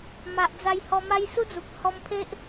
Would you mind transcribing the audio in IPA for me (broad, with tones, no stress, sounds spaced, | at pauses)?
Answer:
m a˨ ʔ d͡z a˧ j h ɔ˧ m a˦ j s u˦ d͡z u˨ p̚ h ɔ˧ m pʰ e˦ ʔ